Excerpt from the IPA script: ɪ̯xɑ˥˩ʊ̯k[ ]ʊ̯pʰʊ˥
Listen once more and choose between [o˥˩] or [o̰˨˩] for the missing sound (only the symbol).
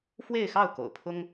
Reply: o̰˨˩